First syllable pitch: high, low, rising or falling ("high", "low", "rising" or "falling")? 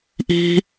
high